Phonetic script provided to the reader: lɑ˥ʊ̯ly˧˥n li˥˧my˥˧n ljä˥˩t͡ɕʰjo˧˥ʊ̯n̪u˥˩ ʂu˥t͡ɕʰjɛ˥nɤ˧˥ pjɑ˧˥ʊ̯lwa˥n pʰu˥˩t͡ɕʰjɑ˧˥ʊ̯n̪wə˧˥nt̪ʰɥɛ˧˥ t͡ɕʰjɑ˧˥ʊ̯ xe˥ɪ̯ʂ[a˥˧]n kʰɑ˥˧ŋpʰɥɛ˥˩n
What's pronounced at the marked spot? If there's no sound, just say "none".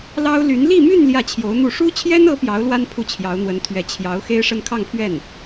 ə˥˧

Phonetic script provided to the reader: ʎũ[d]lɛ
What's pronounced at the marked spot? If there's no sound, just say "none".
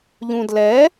d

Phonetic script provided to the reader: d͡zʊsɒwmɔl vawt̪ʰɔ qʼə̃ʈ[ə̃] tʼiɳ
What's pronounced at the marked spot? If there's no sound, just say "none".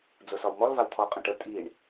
ə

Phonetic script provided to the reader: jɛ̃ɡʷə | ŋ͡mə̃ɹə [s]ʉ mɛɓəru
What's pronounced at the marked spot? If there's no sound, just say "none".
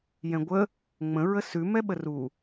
s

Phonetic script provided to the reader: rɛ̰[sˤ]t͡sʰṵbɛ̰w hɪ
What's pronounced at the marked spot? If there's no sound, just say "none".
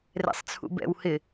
sˤ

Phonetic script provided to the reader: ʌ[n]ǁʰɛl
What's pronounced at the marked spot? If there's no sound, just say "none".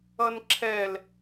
n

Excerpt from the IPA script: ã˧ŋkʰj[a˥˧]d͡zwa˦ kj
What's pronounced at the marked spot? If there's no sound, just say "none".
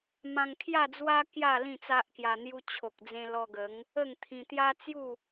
a˥˧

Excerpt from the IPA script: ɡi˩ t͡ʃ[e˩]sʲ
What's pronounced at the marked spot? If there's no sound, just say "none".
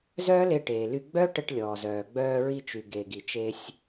e˧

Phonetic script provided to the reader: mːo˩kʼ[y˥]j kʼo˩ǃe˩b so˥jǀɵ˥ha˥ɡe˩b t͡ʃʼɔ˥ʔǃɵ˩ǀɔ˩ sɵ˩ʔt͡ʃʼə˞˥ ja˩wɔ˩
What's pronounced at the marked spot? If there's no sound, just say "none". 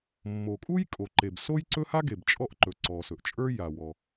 u˥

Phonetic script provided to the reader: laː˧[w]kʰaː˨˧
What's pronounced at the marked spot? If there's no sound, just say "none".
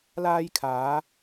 j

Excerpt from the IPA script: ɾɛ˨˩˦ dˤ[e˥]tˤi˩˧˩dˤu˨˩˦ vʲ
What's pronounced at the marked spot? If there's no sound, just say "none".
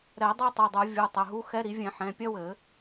e˥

